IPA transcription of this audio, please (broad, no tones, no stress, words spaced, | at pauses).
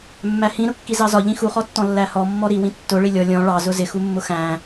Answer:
mːæhĩ ɾʊkːizɑzɒ ʎĩxuχɔtːɔ̃ lːæhɔmːɔ ɾiwĩ tːʊ ɭilʲɔ lʲɔ̃ ɭɑzʊ zɪxumːʊ xæ̃